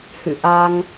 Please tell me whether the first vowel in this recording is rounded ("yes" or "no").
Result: no